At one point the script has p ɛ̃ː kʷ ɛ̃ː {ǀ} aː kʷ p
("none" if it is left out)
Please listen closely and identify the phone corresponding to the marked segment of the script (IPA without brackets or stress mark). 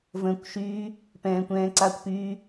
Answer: ǀ